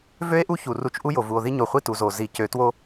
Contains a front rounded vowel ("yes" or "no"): yes